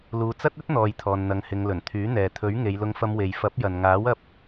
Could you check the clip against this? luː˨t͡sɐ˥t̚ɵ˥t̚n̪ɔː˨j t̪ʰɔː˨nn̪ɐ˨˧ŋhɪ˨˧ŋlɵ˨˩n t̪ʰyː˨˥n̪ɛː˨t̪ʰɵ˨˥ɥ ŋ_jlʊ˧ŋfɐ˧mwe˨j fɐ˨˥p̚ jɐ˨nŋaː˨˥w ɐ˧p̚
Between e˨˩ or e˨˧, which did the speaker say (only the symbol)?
e˨˧